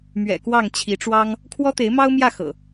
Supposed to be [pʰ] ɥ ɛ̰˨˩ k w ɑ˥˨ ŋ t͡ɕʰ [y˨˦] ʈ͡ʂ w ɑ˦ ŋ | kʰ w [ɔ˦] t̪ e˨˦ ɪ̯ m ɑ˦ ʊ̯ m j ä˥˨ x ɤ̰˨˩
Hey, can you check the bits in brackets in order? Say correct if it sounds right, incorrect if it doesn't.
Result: incorrect: m, incorrect: i˨˦, correct

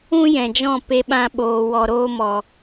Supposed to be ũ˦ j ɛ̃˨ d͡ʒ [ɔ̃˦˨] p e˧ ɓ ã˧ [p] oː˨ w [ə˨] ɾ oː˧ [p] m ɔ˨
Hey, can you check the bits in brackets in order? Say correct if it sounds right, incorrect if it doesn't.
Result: correct, incorrect: ɓ, incorrect: ɔ˨, incorrect: none

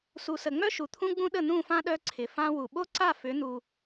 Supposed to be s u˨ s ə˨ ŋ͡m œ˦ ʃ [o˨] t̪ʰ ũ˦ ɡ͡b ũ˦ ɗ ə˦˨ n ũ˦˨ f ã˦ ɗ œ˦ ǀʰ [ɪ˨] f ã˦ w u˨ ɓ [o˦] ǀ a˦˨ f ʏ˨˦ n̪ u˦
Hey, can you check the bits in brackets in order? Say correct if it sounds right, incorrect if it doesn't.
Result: incorrect: u˨, correct, correct

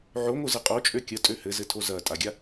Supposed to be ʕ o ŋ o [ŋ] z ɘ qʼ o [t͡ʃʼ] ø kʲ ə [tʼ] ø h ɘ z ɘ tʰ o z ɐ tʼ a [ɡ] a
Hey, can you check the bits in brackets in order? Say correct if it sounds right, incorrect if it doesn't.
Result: incorrect: none, correct, correct, incorrect: ɡʲ

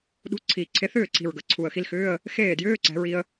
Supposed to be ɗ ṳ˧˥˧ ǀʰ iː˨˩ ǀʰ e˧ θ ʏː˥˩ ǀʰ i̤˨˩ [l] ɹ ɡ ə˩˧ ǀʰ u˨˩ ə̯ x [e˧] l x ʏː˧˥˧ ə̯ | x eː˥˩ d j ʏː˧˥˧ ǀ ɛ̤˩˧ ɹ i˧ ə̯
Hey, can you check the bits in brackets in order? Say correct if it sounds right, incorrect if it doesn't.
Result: incorrect: none, incorrect: i˧

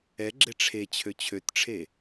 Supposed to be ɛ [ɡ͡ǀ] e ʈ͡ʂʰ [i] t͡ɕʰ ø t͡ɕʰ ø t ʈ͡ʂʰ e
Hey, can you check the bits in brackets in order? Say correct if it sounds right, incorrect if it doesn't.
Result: incorrect: ɡ͡ǁ, incorrect: e

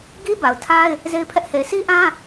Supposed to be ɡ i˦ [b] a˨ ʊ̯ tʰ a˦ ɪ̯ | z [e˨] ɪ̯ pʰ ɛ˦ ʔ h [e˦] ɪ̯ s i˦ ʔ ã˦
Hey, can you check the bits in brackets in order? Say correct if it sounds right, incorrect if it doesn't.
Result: correct, incorrect: e˦, incorrect: e˨

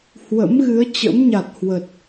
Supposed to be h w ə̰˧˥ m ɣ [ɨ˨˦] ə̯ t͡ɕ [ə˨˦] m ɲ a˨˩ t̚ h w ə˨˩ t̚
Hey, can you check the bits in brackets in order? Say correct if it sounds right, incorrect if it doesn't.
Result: correct, incorrect: ə̰˧˥

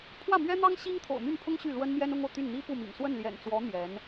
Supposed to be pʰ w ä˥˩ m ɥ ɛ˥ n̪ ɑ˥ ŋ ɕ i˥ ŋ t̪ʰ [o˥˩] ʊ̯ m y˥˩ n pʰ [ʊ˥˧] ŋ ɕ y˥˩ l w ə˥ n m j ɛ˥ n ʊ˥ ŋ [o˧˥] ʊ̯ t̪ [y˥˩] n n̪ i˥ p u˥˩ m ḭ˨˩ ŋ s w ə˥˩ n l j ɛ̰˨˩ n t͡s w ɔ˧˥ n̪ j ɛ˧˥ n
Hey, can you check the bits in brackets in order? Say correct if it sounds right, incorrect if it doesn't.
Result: incorrect: o̰˨˩, incorrect: ʊ˥, incorrect: o˨, correct

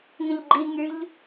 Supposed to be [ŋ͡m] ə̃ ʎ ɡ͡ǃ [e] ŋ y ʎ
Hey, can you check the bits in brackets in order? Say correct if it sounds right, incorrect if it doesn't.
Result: incorrect: ŋ, incorrect: i

